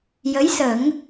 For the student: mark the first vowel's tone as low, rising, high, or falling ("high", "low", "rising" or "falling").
rising